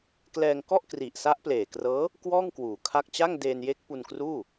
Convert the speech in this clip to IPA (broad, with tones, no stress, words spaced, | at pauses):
klɛː˧ŋkɔ˥˩ʔkri˨˩ʔ sa˦˥ʔpleː˨˩krɤː˦˥ | kwɔː˥˩ŋkwuː˩˦ kʰa˥˩k̚ t͡ɕa˥˩ŋdeː˧nje˦˥k̚ pu˧nkruː˥˩